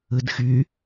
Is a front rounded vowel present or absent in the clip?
present